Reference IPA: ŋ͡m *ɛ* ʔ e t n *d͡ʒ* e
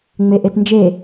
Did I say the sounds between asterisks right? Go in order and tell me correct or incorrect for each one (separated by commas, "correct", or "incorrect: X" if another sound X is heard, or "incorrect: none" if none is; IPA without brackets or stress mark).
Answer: incorrect: e, correct